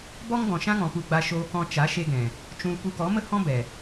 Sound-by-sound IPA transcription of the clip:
b ɔ˦ ŋ ɡ ɔ̃˨ ʃ ã˦ ŋ ɔ̃˨ p u˧ ɡ͡b a˧ ʃ oː˧ k ɔ̃˧ t͡ʃ a˨˦ ʃ e˧ ɡ ɛ̃˨ | t͡ʃ ũ˧ l p u˧ k ɔ˨˦ m ə˦ h ɔ̃˦ b ɛ˨

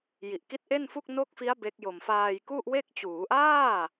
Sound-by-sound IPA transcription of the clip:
j i˨˩ ʔ k i˦˥ t̚ ʔ e˥˩ n f u˥˩ k̚ n o˦˥ k̚ f i˦˥ a̯ b e˦˥ k̚ j o˧ m f aː˧ j k u˥˩ ʔ w e˥˩ k̚ t͡ɕ uː˩˦ ʔ aː˥˩

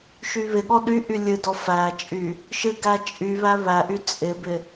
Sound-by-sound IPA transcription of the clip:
ʃ y β ɪ ɠ ɔ ɗ y ʔ y lʲ ɨ d ɔ f æ t͡ʃʼ y | ʃ ɨ ɡ æ t͡ʃʼ y β æ β æ ʔ y t͡sʼ ɪ b ɪ

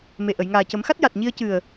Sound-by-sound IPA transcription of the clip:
m e˨˩ ʔ ə˨˩˨ j ŋ aː˨˩ c ə˨˩˦ m x a˦˥ t̚ j a˨˩ t̚ ɲ i˧ ə̯ c ɨ˨˩ ə̯

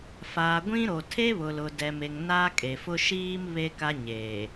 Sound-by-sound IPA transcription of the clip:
f aː˨ ɡʷ ĩ˦ ɾ o˨ tʰ e˦ β ʊ˨ l ʊ˨ d ɛ˨ m e˨ ŋ n a˦ kʼ e˨ f ʊ˦ ʃ iː˦ m β e˦ k a˦ ɲ eː˨

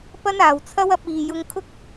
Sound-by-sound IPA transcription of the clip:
p ɐ˥ n aː˨ w t͡sʰ ɐ˥ w ɐ˧ p̚ iː˨ j ʊ˧ ŋ kʰ ʊ˥ k̚

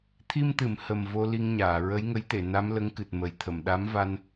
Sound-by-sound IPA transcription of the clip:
t̪ʰ i˧ m t̪ ɨ˨˩˨ m h ə˨˩ m v o˧ l i˧ ŋ ɲ aː˨˩˨ ɹ ə˧˥ j ŋ ə˧˥ j t̪ e˨˩˨ n a˧˥ m l ə˧˥ ŋ k ɨ˨˩ t̚ m ə˨˩˦ j t̪ʰ ə˨˩˨ m ɗ a˧˥ m v a˧ n

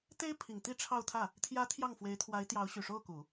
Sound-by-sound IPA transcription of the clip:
t̪ e˥ ɪ̯ pʰ i˨˩ ŋ t̪ i˥ ʈ͡ʂʰ ɑ˥˧ ʊ̯ t̪ʰ ä˥˩ | t̪ʰ j ä˧˥ t̪ʰ j ɑ˥˩ ŋ f w e˧˥ ɪ̯ t̪ʰ w a˧˥ ɪ̯ t̪ j ɑ˧˥ ʊ̯ ɕ y˨˩ ʂ o˥˩ ʊ̯ k u˨˩˦

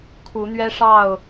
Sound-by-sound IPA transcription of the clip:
kʰ u˨˦ n̪ ɥ ɛ˦ ʂ ɑ˥˨ ʊ̯

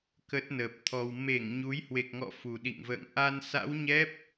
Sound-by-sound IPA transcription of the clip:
k ə˦˥ t̚ n əː˨˩ p̚ t̪ʰ ɔ˧ w m e˧˩ ŋ ɲ u˨˦ j h w e˨˩ k̚ ŋ ɔ̰˧˨ f u˨˩ ɗ ḭ˧˨ ŋ v ə̰ː˧˨ ŋ ʔ a˧ n s a̰˧˥ w ɲ ɛ˦˥ p̚

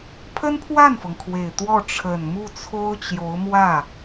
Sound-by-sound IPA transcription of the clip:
pʰ ə˥ n pʰ w a˥˩ n f ɤ˩ ŋ kʰ w e˨˩ ɪ̯ t̪ w ɔ˥˩ ʈ͡ʂʰ ə˨˩ n m u˥˩ t͡sʰ o˥ ʊ̯ t͡ɕ j o˧˥ ʊ̯ m w ä˥˩

